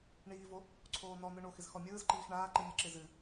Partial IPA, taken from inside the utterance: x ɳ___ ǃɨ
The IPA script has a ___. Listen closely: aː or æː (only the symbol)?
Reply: aː